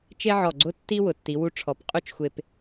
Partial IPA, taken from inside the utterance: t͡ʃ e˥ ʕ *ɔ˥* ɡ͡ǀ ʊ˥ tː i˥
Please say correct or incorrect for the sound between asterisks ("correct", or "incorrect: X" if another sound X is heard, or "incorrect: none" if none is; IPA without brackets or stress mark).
incorrect: ɔ˧˩